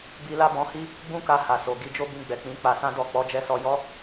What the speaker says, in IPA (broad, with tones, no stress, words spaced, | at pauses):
bi˧la˦bɔ̃˧hi˦ | ɡ͡bũ˦ka˧ha˨so˨ ɡi˨˦d͡ʒo˦ bĩ˧ɡ͡bɛ˨k͡pĩ˨˦ k͡pa˧sã˦dɔ˦˨ k͡pɔ˨˦d͡ʒɛ˧sɔ˧jɔ˦